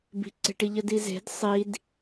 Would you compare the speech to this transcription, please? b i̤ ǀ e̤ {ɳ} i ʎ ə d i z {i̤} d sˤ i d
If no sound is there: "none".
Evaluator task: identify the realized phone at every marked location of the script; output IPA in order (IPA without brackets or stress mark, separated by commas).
ʈ, e̤